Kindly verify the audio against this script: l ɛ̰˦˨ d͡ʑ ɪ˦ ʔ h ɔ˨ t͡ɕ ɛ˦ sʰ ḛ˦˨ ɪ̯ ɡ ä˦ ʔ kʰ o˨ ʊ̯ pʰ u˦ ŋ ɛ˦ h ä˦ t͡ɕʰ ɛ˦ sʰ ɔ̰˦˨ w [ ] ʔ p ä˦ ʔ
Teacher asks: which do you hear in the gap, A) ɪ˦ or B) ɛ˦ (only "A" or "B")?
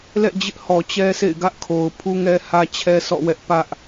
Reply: B